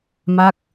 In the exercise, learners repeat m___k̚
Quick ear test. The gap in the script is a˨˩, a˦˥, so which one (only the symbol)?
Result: a˦˥